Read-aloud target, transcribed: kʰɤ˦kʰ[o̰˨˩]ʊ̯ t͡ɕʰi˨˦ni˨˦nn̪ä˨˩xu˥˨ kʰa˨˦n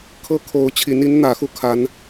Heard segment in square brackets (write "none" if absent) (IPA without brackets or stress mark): o˨˦